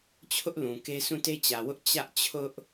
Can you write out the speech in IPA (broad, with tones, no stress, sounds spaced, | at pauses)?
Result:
t͡ɕʰ ʊ˦ ʔ l ũ˨ k e˦ s ũ˦˨ t e˦ t͡ɕ ä˨ w ʊ˦ ʔ t͡ɕ ä˦ ʔ t͡ɕʰ ʊ˦ ʔ